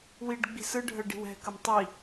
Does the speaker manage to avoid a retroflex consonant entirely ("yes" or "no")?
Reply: no